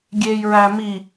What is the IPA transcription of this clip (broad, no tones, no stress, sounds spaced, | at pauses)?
ɡʲ e j ɹ æ m i